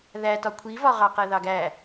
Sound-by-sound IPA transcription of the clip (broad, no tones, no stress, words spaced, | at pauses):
ðætɒ kʷʰivɒʁɑqɛ ðɑɡæ